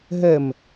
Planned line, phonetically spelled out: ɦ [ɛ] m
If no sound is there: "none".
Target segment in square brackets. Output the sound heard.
ɛ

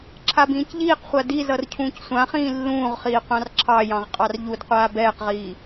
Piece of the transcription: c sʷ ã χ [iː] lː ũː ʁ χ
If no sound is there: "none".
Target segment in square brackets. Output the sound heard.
ĩː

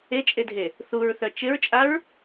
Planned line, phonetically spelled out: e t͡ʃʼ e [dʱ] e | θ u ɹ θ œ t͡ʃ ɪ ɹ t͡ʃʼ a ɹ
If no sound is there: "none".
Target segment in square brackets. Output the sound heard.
dʱ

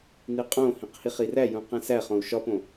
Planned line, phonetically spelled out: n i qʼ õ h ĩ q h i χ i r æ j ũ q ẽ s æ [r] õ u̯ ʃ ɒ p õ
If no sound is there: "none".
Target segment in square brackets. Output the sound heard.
χ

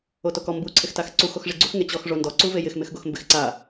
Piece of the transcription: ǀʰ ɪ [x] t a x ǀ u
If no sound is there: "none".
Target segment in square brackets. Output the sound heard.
x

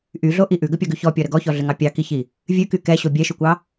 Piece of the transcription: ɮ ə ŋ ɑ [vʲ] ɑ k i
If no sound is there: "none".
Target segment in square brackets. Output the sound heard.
pʲ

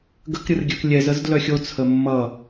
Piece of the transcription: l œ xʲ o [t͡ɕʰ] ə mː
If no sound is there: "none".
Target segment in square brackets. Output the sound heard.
t͡sʰ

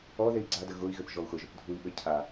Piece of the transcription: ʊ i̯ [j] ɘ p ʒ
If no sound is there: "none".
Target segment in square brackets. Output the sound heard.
ɣ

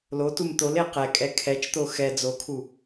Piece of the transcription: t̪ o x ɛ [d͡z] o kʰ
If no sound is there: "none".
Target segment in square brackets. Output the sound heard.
d͡z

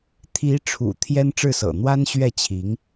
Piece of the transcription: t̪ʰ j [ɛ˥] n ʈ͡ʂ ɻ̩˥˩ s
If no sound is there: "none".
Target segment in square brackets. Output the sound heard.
ɛ˥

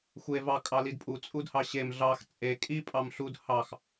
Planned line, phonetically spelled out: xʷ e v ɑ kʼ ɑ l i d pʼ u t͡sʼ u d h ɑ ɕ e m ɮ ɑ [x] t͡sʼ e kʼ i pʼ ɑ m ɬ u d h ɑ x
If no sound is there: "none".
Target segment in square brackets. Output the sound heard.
x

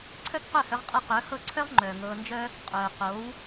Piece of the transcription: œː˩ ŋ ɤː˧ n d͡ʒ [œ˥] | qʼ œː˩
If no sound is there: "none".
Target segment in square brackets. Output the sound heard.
œ˥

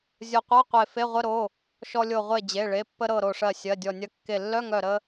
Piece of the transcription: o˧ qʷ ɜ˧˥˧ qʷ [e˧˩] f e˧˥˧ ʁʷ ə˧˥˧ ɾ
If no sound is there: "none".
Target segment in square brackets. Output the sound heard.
e˧˩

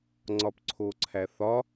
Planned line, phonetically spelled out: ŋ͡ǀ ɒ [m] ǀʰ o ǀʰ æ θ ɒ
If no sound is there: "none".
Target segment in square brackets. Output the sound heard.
p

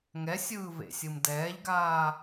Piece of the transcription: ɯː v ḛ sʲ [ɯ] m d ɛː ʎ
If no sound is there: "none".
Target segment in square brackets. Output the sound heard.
ɯ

